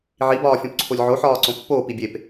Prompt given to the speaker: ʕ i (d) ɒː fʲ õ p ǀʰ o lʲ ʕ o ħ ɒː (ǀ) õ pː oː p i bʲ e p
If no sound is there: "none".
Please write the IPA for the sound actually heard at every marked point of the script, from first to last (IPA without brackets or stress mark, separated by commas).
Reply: b, ǀ